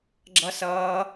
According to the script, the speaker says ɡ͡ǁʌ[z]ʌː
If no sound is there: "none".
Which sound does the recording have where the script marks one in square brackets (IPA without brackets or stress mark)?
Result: s